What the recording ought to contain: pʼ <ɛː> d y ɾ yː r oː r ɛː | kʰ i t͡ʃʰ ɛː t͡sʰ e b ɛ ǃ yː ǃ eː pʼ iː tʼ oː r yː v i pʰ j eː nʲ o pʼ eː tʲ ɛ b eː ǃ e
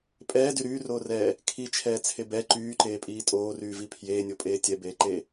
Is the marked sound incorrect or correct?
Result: correct